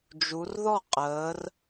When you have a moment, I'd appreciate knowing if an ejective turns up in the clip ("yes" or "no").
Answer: yes